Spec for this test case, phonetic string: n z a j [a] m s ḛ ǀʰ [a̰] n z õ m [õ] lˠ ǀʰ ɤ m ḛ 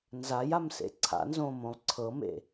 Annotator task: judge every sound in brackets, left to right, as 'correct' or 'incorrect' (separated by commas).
correct, correct, correct